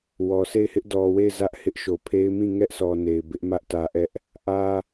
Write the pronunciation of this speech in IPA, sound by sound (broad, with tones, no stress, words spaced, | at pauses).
wɔ˨se˦˨ɪ̯hɪ˦ʔ dɔ˨we˦˨ɪ̯ zä˦ʔhɪ˦ʔʃo˨pʰe˦ɪ̯ mĩ˦˨ŋɛ˦ʔsɔ˨ ne˨ɪ̯bɪ˦ʔ mä˦ʔtä˨ʔɛ˦ʔ | ʔä˦